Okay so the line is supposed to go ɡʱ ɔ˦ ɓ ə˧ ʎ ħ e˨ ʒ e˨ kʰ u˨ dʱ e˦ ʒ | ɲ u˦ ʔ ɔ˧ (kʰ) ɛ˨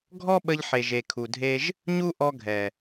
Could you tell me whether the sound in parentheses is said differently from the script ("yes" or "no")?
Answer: yes